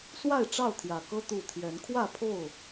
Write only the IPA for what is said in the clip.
swa˥˨ɪ̯ʈ͡ʂɑ˥˨ʊ̯t̪ʰjä˨˩kɤ˦ t̪u˥˨ t̪ʰjɛ˨˦nkʰwä˥˨pʰo˥˨ʊ̯

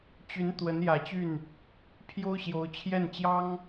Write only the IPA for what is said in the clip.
t͡ɕy˧˥n t̪wə˧˥njä˨˩t͡ɕy˥˩n | pʰjo˥ʊ̯ɕjo˧˥ʊ̯ t͡ɕʰjɛ˥˩nt͡ɕjɑ˥ŋ

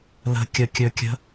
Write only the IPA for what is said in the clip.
lə̤kʲəkʲɵkʲə̤

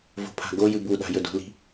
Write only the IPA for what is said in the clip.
vo̤pʰa̤ɡo jɨbuɗa̤ jɵdṳli̤

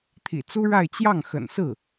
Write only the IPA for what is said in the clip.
t̪ʰḭ˨˩t͡su˥ɻa˥˧ɪ̯ t͡ɕjɑ˥˩ŋxə̰˨˩nsɹ̩˥˩

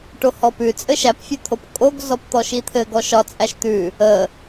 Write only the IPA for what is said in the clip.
ʈohɔpʉ t͡sʼɘʃæpfʲʉt̪ʰop kʼoɡzɔpt̪ɔʃ it̪ʰɘɡ ɔʃɒ t͡sʼæʃt̪ʉ | ə

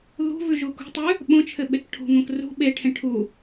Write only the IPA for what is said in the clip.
ðṳ vʉʒukṳtˤʉ | ɓõt͡ʃʰɘ ɓekʈʰṳŋõk rṳ ɓeʈʰẽ ʈʰu

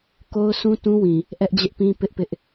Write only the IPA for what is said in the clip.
ko˦ʊ̯sũ˦tũ˦wĩ˨ | ʔɛ˦ʔd͡ʑɪ˦ʔpĩ˦ pɪ˦ʔpɪ˦ʔ

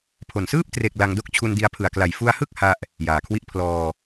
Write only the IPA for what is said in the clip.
pʰo˨˩nsɯː˥˩p̚ tre˨˩k̚ la˧ŋdo˥˩k̚ t͡ɕʰu˧ndi˧a̯pʰɯ˨˩a̯kla˨˩j fu˧a̯hɯ˥˩k̚ ha˥˩ʔ | jaː˨˩kʰwi˥˩ʔ pʰlɔː˧

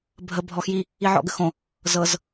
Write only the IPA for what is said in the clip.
bʱə bʱɔxji | iʕɔ̰ɡəxõ | zɤz

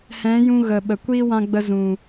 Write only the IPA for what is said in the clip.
hɛ̃˨˦ jũ˧ ɣə˨ ɓə˨ kʷiː˦wã˧ɡ͡bə˧zũ˨

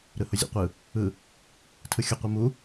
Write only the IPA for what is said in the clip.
ɾɯhʊzʲḛqʷɯ | ɯ | tʰɯxʲʊ qʷɯmu

